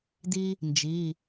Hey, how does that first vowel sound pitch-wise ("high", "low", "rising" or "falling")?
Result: high